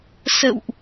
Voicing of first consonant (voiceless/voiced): voiceless